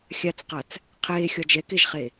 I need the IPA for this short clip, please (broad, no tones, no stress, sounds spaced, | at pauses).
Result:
xʲ a t͡s q a t͡s | qʰ eː xʲ ɒ d͡ʒ ɛ k e ʒ χ e